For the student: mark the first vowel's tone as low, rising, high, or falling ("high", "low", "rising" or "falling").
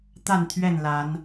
falling